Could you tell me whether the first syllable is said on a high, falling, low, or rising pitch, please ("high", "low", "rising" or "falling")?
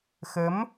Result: rising